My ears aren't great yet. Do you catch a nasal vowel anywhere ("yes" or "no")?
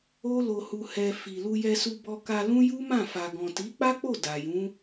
yes